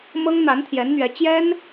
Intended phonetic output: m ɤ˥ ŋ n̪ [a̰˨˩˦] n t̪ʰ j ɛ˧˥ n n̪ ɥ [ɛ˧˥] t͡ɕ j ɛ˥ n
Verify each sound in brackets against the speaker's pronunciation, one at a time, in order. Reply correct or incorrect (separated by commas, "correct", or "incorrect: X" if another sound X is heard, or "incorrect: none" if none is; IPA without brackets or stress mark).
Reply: incorrect: a˧˥, correct